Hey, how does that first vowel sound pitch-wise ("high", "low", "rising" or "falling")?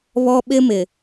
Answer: high